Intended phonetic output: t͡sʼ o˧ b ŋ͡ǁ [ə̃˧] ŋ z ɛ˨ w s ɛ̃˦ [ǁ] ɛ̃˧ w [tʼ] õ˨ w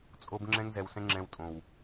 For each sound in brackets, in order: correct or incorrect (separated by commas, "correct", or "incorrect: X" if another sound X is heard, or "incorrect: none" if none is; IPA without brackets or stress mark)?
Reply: incorrect: ɛ̃˧, incorrect: ŋ͡ǁ, correct